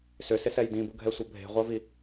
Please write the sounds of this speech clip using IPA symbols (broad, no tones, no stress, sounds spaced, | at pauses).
s ʏ s ɪ s ɛ j d ĩ b u ɡʱ ɛ sʷ ɐ bʱ e̤ ʁʷ ɐ v i